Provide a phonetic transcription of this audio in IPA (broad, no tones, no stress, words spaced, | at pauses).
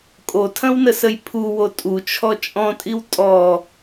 kʼotʰɐ̃wnəsəj pʰuwo tʼut͡ʃʰɔ t͡ʃʼɔ̃tʼiw tʼɔ